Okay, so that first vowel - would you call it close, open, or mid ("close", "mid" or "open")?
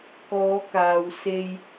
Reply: mid